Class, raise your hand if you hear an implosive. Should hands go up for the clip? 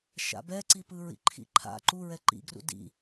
no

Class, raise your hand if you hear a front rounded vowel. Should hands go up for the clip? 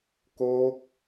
no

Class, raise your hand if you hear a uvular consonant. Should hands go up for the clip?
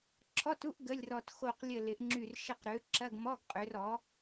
yes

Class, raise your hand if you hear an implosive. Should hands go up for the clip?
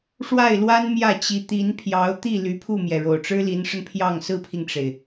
no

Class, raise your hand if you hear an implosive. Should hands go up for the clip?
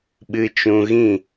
yes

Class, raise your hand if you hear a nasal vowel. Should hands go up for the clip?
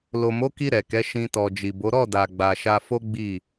yes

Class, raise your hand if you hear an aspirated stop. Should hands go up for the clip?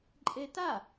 no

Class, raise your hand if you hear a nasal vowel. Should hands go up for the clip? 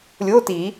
no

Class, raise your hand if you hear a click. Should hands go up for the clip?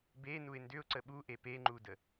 yes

